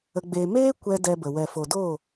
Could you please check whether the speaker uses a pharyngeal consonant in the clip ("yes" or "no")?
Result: no